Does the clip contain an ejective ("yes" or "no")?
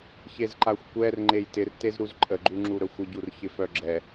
yes